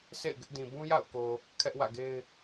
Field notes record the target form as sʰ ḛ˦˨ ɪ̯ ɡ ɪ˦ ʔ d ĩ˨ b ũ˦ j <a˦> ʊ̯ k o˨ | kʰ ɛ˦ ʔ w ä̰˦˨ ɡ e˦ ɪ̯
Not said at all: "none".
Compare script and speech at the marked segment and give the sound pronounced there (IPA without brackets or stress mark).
a̰˦˨